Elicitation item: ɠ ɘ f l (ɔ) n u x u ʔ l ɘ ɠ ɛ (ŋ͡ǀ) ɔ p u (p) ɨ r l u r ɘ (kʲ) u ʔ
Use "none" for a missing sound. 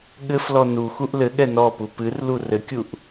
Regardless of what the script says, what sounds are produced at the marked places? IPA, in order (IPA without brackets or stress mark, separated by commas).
ɔ, n, p, kʲ